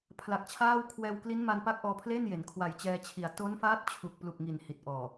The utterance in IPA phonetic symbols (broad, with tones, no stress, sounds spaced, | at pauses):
pʰ l a˨˩ k̚ t͡ɕʰ aː˥˩ w kʰ w ɛː˧ w k l i˦˥ n m a˧ n p a˦˥ k̚ ʔ ɔː˧ pʰ l e˥˩ n j e˩˦ n kʰ w a˨˩ j t͡ɕ ɛː˧ t͡ɕʰ i˨˩ a̯ t o˦˥ n f aː˦˥ t̚ t͡ɕʰ u˨˩ k̚ p l u˨˩ k̚ ŋ i˨˩ n h i˨˩ t̚ ʔ ɔː˨˩